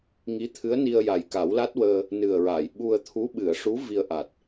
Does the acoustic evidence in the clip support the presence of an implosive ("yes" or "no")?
yes